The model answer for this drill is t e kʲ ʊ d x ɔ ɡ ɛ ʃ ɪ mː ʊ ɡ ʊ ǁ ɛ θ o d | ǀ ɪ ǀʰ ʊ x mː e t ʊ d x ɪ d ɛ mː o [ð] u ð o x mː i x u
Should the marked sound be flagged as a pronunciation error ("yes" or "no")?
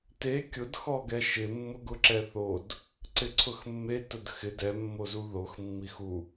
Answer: yes